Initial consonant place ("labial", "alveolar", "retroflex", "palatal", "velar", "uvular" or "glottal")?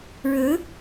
retroflex